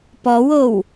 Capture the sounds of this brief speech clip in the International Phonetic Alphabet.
p ɔ w o w

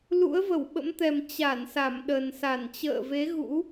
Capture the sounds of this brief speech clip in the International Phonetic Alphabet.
l ṵ˧˥ ə̯ v ə˧˩ w ɓ ə̰˧˥ m t̪ ɛ˨˩ m t͡ɕ a˧˩ n s a˧˩ m ɗ ə˨˩ n s a˧˩ n t͡ɕ ə̰ː˧˨ v e˨˦ ɣ ṵ˧˥

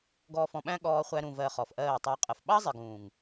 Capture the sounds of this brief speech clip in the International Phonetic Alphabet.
ɡ ɔː˨ f ɔ̃˨ ɓ æ̃˦ ɠ ɔː˧ χʷ æ˧ ɾ ũ˨ v ɜ˨ χ ɔ˨ f ʔ ɜː˦˨ tˤ æ˧ qʼ ə˨ f ɓ ɑ˦ zˤ ɪ˨ ɡ ũː˨ ŋ

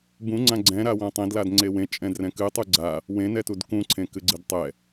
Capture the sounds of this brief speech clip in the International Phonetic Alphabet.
b ũ ŋ͡ǀ ã ɡ͡ǀ ɛ̃ ɾ a w ã tˤ ẽ d l a d ŋ͡ǀ e w ẽ t͡ʃʼ ɛ̃ d r ɛ̃ k ɨ tˤ u ɡ͡ǀ a | w ẽ n ɛ t u d k ũ ǀʰ ẽ k ɨ ɡ͡ǀ ɨ d tˤ ɛ

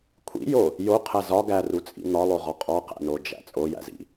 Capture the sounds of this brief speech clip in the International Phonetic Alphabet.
kʷʰ ḭ j o | j o qʰ æ z ɒ ɡ æ r u t͡sʼ ḭ n̪ ɒ lˠ o ʁ ɒ qʼ ɒ q æ̰ n o d͡ʒ æ̰ t͡sʼ o j æ̰ z ḭ

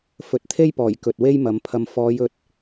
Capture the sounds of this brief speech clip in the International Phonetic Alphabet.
f ɵ˨˥ t̚ t̪ʰ e˥ j p ɔː˨˩ j k ɵ˨ t̚ w e˥ j m ɐ˨˧ m pʰ ɐ˨ m f ɔː˨˧ j ɵ˨ t̚

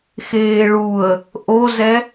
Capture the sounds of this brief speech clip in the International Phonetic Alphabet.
x eː ɭ u ə̯ | ʔ o z ɛ

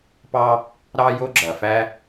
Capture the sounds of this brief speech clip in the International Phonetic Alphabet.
p ɑ˥ | ɾ ɑ˥ j o˥ ɡ͡ǁ ɐ˩ f æ˥

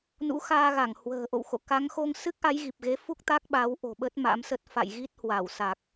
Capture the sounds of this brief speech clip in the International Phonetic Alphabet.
n ṵ˧˥ x aː˧ ɣ a˧˩ ŋ h w ə̤ː˨˩ ʔ o̰˧˨ w x o̰˧˨ k a˨˦ ŋ x o˧ ŋ s ɨ˦˥ k̚ ʔ a˨˦ j ɣ i˨˩ p̚ ɣ e˨˦ f u˦˥ k̚ t̪ a˦˥ k̚ ɓ a˨˦ w ʔ o̤˨˩ ɓ ə˦˥ t̚ m a̰˧˥ m s ə˦˥ t̚ f a̰˧˨ j ɣ i˦˥ t̚ h w a˧˩ w s a˨˩ k̚

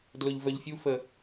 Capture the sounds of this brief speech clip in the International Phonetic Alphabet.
d l ʊ ʎ v œ ʎ fʲ u f ə

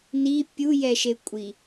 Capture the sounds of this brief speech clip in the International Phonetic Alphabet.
n i pʲ u j ɛ ʃ e kʷʼ i

